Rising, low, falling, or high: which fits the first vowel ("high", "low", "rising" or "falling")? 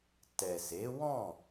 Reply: low